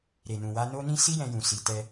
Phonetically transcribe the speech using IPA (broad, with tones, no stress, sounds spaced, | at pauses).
ɾ e˨ n ũ˨ w a˧ n o˦ n ĩ˦ s i˦ j ɛ̃˧ j ũ˨ s i˨ t ɛ˧